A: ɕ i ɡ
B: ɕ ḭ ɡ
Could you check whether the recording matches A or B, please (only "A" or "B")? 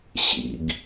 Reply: B